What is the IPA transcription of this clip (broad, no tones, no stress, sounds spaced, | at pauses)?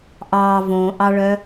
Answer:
ʔ ɑ v õ ʔ ɑ ɭ œ